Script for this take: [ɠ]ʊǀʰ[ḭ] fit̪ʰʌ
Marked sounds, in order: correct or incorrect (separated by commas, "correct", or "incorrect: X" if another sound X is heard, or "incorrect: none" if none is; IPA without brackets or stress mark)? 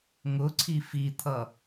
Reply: incorrect: ŋ, incorrect: i